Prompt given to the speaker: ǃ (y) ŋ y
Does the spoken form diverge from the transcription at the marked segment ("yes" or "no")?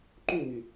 yes